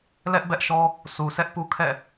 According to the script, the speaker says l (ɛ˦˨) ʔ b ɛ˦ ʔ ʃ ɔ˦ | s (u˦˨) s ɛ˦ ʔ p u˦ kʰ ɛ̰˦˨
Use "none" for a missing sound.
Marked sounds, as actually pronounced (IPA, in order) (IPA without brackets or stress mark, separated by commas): ɛ˦, u˨